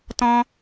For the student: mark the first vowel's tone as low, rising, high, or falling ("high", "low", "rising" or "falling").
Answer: high